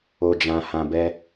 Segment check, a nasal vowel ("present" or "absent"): present